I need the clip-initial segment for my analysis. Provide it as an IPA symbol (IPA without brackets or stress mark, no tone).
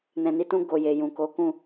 n